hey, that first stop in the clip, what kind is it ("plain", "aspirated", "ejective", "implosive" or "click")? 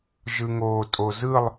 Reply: ejective